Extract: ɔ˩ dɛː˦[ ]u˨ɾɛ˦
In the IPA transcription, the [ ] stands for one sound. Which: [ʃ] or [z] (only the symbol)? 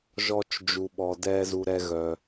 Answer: z